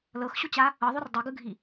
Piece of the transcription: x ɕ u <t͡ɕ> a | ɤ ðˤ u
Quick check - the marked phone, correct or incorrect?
correct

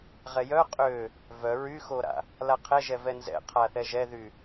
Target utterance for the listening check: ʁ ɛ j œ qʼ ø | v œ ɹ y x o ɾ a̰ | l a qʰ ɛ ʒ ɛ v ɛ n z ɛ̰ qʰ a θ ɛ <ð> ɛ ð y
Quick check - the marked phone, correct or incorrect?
incorrect: ʒ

